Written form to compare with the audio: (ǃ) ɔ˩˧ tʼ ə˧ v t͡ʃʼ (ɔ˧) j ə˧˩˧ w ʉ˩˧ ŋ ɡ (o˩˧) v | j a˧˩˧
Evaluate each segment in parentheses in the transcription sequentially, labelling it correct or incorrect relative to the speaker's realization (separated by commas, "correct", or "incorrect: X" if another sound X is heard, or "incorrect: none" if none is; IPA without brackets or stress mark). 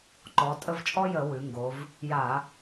correct, incorrect: ɔ˥, correct